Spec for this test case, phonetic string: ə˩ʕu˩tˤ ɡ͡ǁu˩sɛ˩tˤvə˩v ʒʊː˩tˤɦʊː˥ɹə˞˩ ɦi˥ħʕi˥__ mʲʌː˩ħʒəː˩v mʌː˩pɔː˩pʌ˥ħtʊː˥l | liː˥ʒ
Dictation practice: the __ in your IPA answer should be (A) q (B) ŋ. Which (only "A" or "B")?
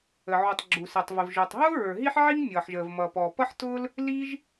B